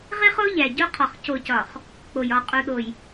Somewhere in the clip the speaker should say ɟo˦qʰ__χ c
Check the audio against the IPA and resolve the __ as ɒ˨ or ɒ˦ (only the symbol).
ɒ˨